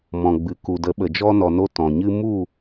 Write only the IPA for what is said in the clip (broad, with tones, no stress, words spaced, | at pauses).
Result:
mɔ̃˨ɡ͡bɨ˨ ku˨də˨˦ɓə˨ d͡ʒɔ˧nɔ˨no˧ tɔ̃˨ɲɨ˦ mu˦˨